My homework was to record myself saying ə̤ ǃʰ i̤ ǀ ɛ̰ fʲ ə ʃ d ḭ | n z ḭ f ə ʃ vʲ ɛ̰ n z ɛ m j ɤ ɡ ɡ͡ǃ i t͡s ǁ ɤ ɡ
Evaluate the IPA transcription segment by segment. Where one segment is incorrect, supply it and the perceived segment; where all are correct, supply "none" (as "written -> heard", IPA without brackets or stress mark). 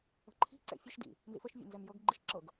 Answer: t͡s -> ʃ